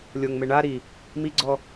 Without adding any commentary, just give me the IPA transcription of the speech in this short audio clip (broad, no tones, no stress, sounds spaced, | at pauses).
lʲ o ŋ m e ɳ a ɾ i | m i ɡ͡ǀ ɔ